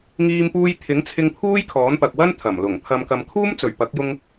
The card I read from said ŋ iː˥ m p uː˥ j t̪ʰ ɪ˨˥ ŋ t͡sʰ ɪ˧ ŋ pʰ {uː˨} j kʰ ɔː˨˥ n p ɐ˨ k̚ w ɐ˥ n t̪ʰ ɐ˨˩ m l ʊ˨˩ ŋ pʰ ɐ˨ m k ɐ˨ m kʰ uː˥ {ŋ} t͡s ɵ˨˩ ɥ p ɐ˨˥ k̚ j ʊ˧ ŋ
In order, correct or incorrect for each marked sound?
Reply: incorrect: uː˥, incorrect: m

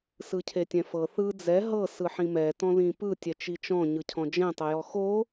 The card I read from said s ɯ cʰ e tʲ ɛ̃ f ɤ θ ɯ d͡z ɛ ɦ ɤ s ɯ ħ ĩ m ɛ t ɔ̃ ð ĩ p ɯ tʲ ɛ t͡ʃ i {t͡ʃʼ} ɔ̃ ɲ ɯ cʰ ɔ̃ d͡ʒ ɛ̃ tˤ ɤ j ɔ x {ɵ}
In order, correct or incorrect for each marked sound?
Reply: incorrect: t͡ʃ, incorrect: o

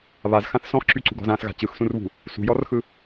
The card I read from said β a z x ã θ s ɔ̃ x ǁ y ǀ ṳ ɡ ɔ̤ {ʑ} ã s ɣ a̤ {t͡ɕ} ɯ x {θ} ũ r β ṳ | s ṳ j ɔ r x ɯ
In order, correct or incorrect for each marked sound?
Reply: incorrect: z, correct, incorrect: s

